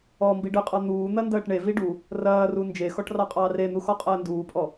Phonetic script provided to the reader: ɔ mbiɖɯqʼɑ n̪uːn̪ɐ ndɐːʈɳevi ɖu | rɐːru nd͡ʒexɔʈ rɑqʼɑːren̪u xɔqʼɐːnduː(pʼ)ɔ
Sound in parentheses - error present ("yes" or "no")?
no